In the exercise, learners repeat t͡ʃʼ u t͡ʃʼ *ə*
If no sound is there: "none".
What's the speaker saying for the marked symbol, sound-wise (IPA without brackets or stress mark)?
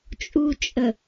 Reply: ə